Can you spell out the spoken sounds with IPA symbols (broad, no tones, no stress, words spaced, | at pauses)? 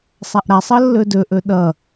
sˤaʔɾasˤʌ lːɵdɵʔɵ ɗʌ